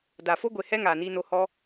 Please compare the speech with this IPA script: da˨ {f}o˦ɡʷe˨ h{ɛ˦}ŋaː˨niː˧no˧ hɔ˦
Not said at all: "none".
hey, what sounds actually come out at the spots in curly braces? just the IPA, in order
f, ɛ˦

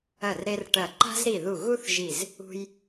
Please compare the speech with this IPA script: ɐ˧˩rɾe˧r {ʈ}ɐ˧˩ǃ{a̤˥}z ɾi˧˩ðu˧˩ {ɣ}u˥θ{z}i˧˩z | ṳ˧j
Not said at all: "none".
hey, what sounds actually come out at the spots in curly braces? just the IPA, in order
ʈ, a̤˥, ɣ, ʒ

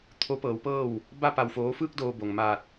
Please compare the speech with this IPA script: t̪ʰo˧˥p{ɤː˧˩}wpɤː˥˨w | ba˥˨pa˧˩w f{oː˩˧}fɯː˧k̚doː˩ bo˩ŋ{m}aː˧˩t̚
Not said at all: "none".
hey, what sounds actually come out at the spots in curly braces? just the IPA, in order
ɤː˩˧, oː˩˧, m

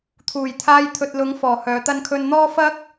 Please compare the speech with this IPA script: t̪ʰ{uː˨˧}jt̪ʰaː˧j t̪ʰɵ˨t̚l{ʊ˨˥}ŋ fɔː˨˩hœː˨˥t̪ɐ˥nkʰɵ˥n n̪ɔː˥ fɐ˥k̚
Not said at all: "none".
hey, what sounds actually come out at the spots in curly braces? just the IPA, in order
uː˨˩, ʊ˨˥

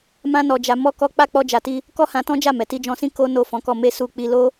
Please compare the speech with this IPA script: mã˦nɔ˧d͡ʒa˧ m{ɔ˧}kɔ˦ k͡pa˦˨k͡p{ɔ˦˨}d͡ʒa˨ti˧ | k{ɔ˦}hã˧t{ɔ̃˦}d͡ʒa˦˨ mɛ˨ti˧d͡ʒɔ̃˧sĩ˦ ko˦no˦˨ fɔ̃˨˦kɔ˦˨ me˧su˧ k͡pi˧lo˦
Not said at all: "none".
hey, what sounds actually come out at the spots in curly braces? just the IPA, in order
ɔ˦, ɔ˧, ɔ˦, ɔ̃˦

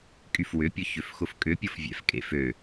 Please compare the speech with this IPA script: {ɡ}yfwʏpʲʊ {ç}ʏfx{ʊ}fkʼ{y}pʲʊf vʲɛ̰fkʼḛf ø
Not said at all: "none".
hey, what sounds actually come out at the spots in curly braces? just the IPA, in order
kʼ, ç, ʊ, ʏ

